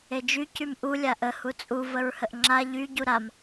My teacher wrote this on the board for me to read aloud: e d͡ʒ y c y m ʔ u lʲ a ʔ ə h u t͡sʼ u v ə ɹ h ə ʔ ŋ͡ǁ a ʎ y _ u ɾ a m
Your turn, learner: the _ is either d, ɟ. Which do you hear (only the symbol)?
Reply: ɟ